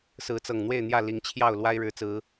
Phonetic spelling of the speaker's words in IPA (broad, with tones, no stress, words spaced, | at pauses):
sɹ̩˨˦t͡sɤ˨˩ŋn̪we˥˨ɪ̯n̪jä˥˨ li˨˦ŋt͡ɕʰjɑ˥˨ʊ̯lwa˦ɪ̯ ɻɻ̩˨˦t͡sɹ̩˨˦